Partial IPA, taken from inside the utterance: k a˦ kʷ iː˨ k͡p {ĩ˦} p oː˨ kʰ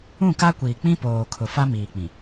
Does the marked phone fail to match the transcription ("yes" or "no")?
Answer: no